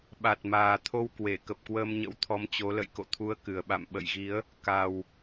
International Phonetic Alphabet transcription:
ɓ a˨˩ t̚ m aː˨˩ t̪ʰ o˧ w k w e˧˩ k ə˨˩ p̚ k w əː˧ m ɲ ə̰˧˥ w t̪ʰ ɔ˨˦ m t͡ɕ o˨˦ l ə̰˧˨ j k o̰˧˨ t̪ʰ u˨˦ ə̯ k ɨ˨˩ ə̯ ɓ a̰˧˨ m ɓ ə̰˧˨ j ɣ i˨˦ ə̯ | k a˨˩ w

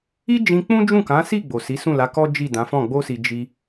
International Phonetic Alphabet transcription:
i˦ d͡ʒ ĩ˧ k͡p ũ˦ d͡ʒ ũ˦˨ k ã˨˦ s i˦˨ ɡ͡b o˨ s i˨˦ s ũ˦˨ l a˨˦ k ɔ˦ d͡ʒ i˦˨ d ã˨˦ f ɔ̃˦˨ ɡ͡b o˧ s i˨ d͡ʒ i˧

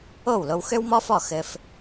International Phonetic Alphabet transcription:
o˥˩ w l o˧ w x ø˥ w m ɔ˥ f ɔ˥˩ x ɘ˧ f

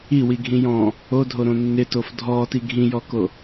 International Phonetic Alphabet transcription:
i w i ɡʱ ĩ j ɔ̃ | o dʱ o ɾ õ nː ɪ t o f dʱ ɔː t i ɡʱ ĩ j ɔ k o

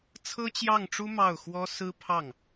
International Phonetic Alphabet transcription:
t͡sʰ ɤ˥ t͡ɕ j ɑ˥˩ ŋ ʈ͡ʂ u˥ m ɑ˥˩ ʊ̯ x w ɔ˥ s ɹ̩˥ pʰ ɑ˥˩ ŋ

